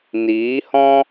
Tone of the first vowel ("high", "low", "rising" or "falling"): rising